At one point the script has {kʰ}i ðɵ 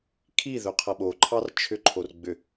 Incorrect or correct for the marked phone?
correct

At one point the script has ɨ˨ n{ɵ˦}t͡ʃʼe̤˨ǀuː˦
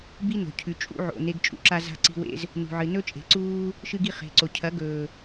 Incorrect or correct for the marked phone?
correct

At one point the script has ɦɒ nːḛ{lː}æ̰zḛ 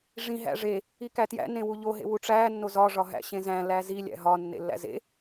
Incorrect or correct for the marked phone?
correct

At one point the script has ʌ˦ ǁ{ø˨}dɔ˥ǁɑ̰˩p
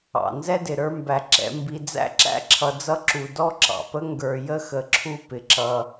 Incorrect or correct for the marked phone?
incorrect: u˨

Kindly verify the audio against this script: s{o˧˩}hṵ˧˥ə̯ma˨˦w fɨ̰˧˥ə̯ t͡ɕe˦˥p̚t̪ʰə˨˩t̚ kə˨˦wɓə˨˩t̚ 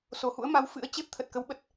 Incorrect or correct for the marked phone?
correct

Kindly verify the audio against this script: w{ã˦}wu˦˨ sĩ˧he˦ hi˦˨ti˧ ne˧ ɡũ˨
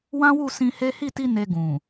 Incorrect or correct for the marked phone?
correct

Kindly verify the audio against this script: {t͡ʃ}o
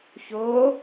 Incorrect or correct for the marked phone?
incorrect: ç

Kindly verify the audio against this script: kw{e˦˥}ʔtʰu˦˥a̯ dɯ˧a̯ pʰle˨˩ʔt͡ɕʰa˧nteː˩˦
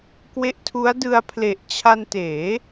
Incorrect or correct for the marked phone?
correct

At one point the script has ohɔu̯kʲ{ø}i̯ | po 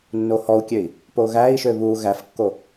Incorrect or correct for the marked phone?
correct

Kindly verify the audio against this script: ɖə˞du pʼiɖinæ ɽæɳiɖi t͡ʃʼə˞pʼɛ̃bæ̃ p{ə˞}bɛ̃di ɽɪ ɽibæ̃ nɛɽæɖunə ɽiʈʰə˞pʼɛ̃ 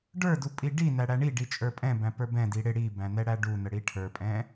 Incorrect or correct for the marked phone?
correct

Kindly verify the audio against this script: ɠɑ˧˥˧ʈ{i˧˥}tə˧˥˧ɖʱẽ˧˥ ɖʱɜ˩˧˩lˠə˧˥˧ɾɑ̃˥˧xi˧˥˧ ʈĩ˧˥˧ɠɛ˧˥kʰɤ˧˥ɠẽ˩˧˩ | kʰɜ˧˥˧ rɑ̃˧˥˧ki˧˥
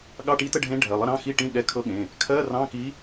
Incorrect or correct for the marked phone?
correct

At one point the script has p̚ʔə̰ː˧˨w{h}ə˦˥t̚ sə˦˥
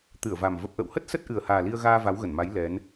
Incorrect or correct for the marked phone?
correct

